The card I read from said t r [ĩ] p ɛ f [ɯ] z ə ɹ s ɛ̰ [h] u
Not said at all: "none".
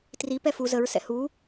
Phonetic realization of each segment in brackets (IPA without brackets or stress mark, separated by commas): i, u, h